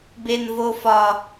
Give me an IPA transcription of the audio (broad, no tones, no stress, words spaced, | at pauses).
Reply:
benvofɒ